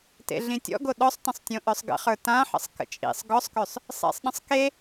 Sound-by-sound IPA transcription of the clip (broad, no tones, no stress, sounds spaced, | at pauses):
t ḛ ɮ ĩ tʲ ɔ̰ ɡ o ɗ ɔ sˤ t ə̃ sˤ tʲ õ ʔ œ sˤ ɡ ə̰ χ ə˞ t ã ħ ə̰ sˤ k ə̰ t͡ʃʼ ḭ sˤ ɡ ɔ sˤ k ø sˤ | sˤ ḛ sˤ ɗ ə̃ sˤ k e